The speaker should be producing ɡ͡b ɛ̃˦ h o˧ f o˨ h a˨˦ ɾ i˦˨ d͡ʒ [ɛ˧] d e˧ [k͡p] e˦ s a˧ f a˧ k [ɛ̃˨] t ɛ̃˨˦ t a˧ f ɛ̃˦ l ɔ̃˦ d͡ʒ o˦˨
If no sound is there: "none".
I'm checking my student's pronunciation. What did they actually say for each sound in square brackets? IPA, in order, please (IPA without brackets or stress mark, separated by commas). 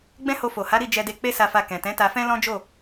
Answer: ɛ˧, k͡p, ɛ̃˨